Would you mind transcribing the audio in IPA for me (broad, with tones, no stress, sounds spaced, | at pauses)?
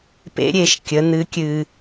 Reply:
p ḛ˧˥ ɾʲ e˩˧ ʃ kʲ ə˩˧ n̪ ɨ˩˧ kʲ ɨː˩